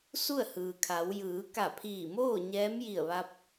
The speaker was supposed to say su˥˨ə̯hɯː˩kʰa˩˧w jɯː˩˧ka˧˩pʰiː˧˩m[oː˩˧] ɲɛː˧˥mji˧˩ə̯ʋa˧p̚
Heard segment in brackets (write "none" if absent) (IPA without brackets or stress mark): oː˥˨